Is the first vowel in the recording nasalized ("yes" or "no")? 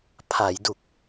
no